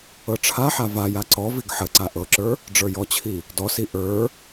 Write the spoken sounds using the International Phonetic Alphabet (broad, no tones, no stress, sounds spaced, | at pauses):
ɤ ʈ͡ʂʰ a ħ a v a j a ǀ ɔ v i ɡ ħ ə ǀ a ʔ ɤ ǁ ə˞ | ɖ͡ʐ ə˞ j ɔ t͡ɕʰ i | d ɔ s i ʔ ə˞